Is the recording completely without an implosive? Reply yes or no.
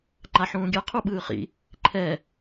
no